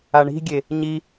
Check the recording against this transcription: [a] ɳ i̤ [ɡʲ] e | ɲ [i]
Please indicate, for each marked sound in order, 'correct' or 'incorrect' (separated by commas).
correct, correct, correct